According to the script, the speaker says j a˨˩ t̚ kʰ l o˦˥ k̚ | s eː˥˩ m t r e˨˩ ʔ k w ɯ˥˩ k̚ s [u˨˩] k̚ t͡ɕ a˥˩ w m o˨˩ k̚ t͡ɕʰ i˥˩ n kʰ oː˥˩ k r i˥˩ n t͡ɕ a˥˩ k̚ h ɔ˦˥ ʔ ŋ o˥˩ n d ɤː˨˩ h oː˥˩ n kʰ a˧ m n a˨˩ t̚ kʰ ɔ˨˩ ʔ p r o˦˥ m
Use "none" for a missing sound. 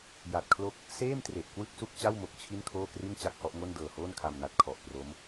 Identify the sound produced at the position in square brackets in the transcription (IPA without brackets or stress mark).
u˥˩